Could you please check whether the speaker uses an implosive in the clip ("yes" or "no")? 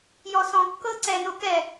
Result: no